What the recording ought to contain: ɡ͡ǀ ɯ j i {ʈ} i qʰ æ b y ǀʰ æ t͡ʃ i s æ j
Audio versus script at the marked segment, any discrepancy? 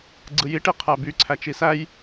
no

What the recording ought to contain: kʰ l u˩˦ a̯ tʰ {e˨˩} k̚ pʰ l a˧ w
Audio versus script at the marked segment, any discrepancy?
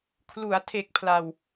no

